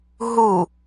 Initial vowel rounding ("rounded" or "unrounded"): rounded